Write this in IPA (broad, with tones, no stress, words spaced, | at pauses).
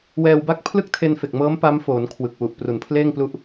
wɛː˧wba˥˩k̚ pʰlɯ˥˩k̚tʰe˧nfe˨˩k̚mɤː˦˥m pa˦˥mfoː˩˦n kʰwɯ˨˩k̚wu˨˩ʔ pru˩˦npʰleː˥˩ŋplu˦˥ʔ